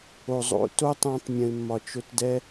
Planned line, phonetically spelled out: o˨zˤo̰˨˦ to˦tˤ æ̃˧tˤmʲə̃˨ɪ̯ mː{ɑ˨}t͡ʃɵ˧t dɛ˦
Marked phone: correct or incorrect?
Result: incorrect